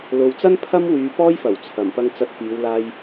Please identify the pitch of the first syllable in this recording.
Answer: low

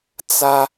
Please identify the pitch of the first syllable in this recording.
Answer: high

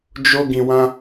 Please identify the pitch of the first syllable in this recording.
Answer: low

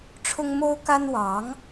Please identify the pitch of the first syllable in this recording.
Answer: high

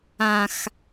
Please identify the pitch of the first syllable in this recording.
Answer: low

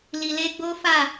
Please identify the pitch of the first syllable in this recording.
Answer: low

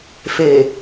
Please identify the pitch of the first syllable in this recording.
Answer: low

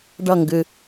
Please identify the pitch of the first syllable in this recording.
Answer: falling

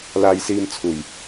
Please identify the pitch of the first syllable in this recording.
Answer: low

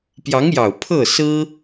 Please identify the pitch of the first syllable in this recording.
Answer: rising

